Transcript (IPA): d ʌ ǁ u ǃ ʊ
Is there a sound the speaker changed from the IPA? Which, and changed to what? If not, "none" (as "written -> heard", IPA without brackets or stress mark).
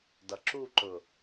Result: none